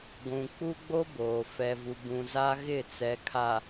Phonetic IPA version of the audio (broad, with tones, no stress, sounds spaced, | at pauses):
ɡʷ ũ˨ k͡p u˦ ɡ͡b o˦ b oː˨ f ɛ˨ v u˨ b ũ˨ z a˦ ɣ ɪ˦˨ t͡s ɛ˨ kʰ a˨